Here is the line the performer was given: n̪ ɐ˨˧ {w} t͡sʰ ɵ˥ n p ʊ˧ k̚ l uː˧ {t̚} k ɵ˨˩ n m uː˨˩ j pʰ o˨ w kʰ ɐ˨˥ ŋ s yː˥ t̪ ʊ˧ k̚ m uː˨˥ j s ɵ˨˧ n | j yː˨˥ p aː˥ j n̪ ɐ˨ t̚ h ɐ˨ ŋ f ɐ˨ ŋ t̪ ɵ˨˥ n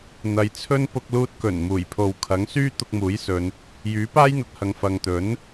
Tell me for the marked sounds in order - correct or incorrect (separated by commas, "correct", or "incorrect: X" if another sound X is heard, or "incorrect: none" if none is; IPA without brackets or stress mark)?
incorrect: j, correct